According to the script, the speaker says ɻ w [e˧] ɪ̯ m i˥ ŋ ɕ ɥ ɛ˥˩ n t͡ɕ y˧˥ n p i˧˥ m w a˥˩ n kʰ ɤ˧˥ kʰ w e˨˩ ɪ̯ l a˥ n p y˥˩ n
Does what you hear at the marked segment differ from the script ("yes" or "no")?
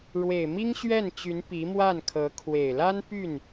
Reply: yes